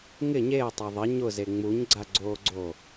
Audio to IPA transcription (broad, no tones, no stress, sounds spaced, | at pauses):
ŋ ɪ ɲ e ə̯ tˤ a ðˤ ɪ ɲ ʊ z e ŋ͡m u ɲ ɡ͡ǀ a ɡ͡ǀ oː ɡ͡ǀ o